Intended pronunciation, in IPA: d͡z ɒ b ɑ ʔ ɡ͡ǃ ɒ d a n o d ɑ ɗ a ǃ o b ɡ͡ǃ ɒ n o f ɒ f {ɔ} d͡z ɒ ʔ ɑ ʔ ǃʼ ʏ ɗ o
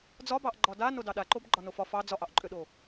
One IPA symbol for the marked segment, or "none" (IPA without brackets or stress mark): ɑ